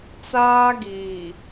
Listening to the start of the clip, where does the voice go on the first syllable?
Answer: high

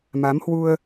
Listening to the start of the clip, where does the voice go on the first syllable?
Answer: rising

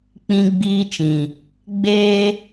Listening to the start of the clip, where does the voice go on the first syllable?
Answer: high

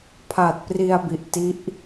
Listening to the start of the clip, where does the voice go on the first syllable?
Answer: low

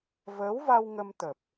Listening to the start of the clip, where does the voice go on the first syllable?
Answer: rising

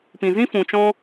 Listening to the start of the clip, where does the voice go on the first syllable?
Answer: low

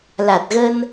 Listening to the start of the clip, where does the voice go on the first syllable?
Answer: low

